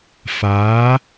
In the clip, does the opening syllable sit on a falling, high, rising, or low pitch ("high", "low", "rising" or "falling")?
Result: rising